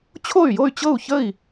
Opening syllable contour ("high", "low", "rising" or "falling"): falling